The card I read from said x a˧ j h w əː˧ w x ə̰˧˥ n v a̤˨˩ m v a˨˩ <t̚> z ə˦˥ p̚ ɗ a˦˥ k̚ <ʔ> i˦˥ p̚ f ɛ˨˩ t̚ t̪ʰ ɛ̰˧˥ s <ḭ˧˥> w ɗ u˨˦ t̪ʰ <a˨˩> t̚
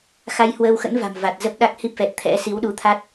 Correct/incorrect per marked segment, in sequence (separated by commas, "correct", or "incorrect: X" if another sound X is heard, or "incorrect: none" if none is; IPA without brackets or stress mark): correct, incorrect: h, incorrect: i˨˦, incorrect: a˦˥